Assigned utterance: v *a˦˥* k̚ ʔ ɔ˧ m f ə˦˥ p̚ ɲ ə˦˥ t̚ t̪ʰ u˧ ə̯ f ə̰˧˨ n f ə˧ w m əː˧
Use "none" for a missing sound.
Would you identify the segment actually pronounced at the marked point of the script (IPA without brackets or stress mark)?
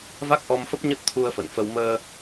a˦˥